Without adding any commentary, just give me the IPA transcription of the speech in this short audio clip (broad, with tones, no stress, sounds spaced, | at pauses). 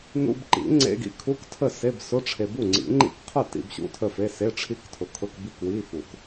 n ṵ˧˥˧ b ǃ ḭ˨˩˦ ŋ͡ǀ ḛ˧˥˧ ɡ ḭ˦˥ kʰ u˧˥˧ k tʰ ə˥˩ s e˧˥˧ b s ʊ˧˥˧ ʈ͡ʂʰ e˨ b u˥˩ ŋ͡ǀ ḭ˨˩˦ ŋ͡ǃ ḭ˥˩ k qʰ ʊ˥˩ t ḭ˧˥˧ b ɕ ṵ˥˩ tʰ ə˥˩ f e˧˥˧ s e˧˥˧ ʈ͡ʂʰ i˦˥ k tʰ ʊ˨ kʰ ʊ˧˥˧ k b i˥˩ k w i˧˥˧ f u˨˩˦ k